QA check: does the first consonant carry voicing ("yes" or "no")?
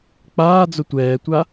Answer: no